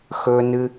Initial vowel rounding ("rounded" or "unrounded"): rounded